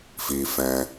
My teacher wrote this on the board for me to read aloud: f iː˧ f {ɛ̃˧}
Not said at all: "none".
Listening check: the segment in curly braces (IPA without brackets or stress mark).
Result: ɛ̃˧